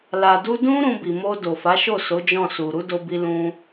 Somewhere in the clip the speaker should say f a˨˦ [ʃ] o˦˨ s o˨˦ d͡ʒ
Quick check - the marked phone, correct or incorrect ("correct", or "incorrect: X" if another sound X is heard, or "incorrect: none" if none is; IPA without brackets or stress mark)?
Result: correct